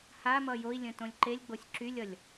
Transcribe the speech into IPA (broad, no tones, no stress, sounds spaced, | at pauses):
h a m ʌ j o i̯ lʲ ə̃ t õ lʲ ǃ e lʲ ɡ͡b o sʲ ǁ y lʲ ʌ lʲ